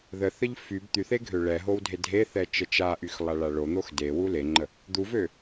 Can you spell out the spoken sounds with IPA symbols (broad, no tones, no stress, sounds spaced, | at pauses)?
ð ə θ ə ʎ f y b t̪ y θ e ɡʱ ø ɭ ɛ ɦ o w dʱ e dʱ e θ ɛ t͡ʃ ə t͡ʃ a ʔ y x lˠ a ɭ a ɭ o n̪ o x d e w u l e ŋ͡ǃ ə | d̪ u v ø